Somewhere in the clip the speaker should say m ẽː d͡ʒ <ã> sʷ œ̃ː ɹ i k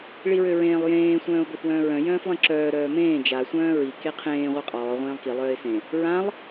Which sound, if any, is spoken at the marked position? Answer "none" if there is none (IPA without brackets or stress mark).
a